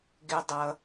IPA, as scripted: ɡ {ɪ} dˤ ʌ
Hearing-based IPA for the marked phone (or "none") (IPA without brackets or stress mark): ɪ